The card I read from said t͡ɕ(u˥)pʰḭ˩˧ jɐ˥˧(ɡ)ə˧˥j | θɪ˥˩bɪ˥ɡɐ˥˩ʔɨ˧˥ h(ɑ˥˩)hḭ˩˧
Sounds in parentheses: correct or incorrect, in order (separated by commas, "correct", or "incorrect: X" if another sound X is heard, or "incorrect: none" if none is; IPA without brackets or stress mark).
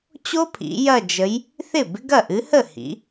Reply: incorrect: o˥, incorrect: d͡ʒ, incorrect: ə˥˩